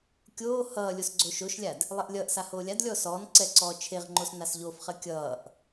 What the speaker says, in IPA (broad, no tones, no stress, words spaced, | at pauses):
kʲoː hʌː lʲosɡ͡ǀoːʃoʃlʲad | lˠeʔlʲʌːʔsa hoːlʲadlʲɔː sɔːnǀɛ ǀɔːt͡ʃʰeʁŋ͡ǃos nasʎofχɜ kʲʌːʔ